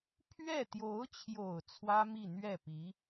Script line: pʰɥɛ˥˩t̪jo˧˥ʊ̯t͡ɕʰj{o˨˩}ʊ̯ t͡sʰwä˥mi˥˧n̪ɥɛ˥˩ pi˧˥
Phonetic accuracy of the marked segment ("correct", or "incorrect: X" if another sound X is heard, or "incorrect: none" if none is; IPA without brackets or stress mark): correct